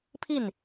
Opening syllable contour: falling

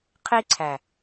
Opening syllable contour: high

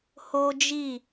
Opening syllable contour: high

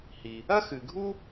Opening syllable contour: low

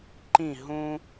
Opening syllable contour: falling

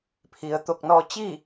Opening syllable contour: low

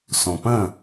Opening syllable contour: low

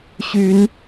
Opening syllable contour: rising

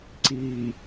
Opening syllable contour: low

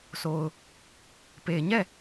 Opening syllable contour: low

